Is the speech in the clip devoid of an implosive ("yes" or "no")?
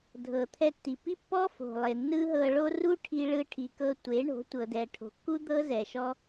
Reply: yes